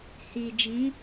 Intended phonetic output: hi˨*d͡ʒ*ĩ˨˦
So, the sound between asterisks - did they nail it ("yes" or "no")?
yes